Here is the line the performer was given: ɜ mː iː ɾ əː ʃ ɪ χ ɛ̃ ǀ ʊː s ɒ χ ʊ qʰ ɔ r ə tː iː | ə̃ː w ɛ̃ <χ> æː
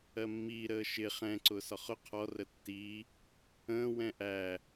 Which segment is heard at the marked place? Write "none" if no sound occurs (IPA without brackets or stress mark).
ʔ